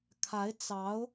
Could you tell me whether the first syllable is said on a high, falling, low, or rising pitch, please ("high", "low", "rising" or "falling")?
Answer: rising